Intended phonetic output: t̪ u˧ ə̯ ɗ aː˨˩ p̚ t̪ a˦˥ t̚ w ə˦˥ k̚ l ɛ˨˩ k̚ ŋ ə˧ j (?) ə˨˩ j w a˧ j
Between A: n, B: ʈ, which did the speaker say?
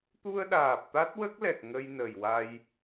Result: A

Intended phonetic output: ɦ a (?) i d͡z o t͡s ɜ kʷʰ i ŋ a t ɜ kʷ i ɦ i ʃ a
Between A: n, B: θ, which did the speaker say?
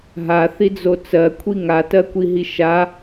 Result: B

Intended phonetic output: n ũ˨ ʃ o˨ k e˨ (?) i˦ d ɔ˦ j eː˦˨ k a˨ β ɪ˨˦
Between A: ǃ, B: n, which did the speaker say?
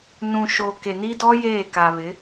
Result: B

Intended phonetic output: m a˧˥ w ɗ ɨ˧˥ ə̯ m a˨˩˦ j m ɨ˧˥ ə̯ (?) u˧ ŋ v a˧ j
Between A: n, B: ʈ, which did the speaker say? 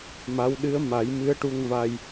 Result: B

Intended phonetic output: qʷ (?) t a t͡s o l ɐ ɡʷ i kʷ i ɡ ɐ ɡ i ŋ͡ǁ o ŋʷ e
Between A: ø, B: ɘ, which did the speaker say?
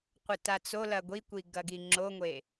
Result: B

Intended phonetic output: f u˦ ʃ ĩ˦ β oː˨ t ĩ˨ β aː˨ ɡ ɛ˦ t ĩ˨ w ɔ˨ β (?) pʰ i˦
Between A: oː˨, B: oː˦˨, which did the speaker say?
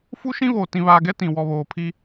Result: A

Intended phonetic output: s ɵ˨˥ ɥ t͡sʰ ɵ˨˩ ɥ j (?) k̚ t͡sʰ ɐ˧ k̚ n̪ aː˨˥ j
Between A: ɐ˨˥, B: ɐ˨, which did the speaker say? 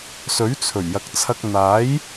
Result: B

